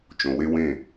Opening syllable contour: low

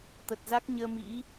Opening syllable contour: low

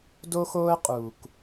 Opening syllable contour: high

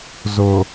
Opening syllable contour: low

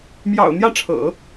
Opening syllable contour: low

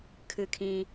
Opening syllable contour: low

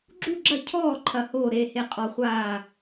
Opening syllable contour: falling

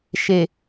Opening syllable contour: low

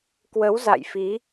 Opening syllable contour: rising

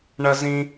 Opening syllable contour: high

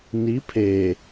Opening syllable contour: rising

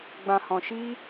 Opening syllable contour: low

